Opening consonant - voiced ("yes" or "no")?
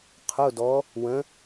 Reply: no